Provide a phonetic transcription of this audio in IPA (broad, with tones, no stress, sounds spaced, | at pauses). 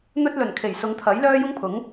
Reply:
n̪ ɵ˥ t̚ l ɵ˨˩ n kʰ e˨˩ j s ʊ˨˧ ŋ t̪ʰ ɐ˨˥ j l œː˥ j ʊ˥ ŋ pʰ ʊ˨˥ ŋ